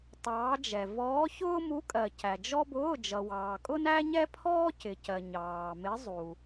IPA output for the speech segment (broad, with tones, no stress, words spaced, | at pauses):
tˤɑː˧˥d͡ʒɛ˨ vɔː˧˥çʊː˥mu˧˥kʼɜ˨ cæ˨d͡ʒɔ˥bʊː˧˥˧ d͡ʒʌ˨wɑː˨ kʼʊ˥næ˥ɲɛ˥pʰɔː˥ cɪ˨cɜ˨ ɲɑː˨mɪ˧˥zˤu˨